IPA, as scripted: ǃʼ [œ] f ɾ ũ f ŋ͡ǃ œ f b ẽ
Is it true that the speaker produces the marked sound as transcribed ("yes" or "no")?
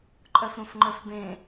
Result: yes